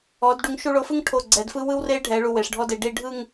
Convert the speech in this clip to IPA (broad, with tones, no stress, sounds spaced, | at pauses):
ɔ˩˧ d ɖ u˩˧ ŋ ʃ u˧ ɭ o˧ f ɯ˥ ŋ ʈʰ o˧˩ ɡ͡ǀ ɛ˩˧ d f ɯ˥ w ɯ˥ w r e˥ ɖʱ ɛ˩˧ ɭ u˧ w e˩˧ ʂ ɖʱ ɔ˥ d e˧ ɖ i˥˧ ɖʱ ɯ˥˧ ŋ